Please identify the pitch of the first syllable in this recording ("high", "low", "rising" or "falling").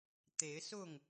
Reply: rising